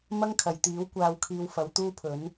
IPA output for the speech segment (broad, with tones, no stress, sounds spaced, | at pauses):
m ɐ˥ ŋ kʰ ɐ˨˩ j t̪ iː˨˥ w kʷ aː˨ w kʰ iː˨ w f ɐ˨˧ w t̪ uː˥ pʰ ɵ˨˥ n